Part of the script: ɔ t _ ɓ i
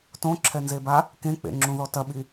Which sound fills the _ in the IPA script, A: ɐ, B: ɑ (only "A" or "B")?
A